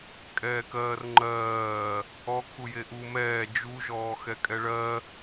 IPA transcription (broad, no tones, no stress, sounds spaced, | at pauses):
kʼ ɛː k ɜː r ŋ͡ǃ ɜː | ɔ kʰ u j e ʔ u m ɛː d͡ʒ u ʒ ɔː x ɛ kʼ ɛ ɭ ɜ